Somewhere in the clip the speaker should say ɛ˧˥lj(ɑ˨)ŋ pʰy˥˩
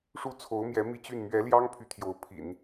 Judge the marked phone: incorrect: ɑ˥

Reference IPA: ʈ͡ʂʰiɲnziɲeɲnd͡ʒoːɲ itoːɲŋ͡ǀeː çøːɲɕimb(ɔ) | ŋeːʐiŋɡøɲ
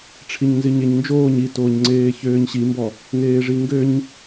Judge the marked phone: correct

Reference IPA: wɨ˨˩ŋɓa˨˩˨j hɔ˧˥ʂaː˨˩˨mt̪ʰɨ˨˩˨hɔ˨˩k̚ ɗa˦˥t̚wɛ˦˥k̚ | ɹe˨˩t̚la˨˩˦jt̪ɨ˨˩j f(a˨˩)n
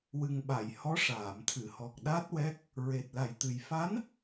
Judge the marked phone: incorrect: a˧˥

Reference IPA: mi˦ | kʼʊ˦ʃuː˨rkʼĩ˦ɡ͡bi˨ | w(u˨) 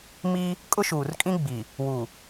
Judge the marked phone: correct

